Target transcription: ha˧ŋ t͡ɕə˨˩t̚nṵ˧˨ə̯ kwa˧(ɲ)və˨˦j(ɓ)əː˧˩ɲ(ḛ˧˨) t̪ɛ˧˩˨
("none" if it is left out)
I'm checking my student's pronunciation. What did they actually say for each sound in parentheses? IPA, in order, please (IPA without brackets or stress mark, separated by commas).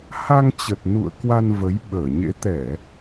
n, ɓ, ḛ˧˥